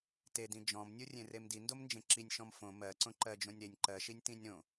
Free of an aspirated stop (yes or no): yes